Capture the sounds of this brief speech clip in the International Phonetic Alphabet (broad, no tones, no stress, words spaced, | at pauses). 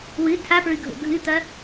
wɨ tʰapɹɨɡʱo̰ ɡʱɨt̪ɐ